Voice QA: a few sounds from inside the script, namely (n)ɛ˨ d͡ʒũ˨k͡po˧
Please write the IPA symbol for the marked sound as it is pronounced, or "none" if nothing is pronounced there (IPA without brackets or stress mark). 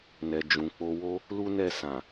n